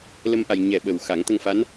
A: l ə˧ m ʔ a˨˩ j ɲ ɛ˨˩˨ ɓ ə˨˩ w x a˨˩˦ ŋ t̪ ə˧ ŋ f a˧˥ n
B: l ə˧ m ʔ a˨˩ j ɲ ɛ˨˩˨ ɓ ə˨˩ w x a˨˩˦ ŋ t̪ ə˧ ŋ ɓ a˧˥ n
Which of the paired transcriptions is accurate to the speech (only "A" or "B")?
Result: A